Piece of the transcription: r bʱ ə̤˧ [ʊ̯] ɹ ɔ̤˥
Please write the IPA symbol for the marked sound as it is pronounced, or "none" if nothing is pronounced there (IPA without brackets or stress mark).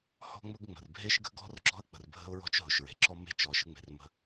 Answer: ʊ̯